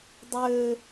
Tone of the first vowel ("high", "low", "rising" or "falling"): high